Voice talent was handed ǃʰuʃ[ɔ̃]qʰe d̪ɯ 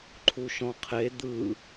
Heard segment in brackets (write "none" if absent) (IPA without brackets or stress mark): ɔ̃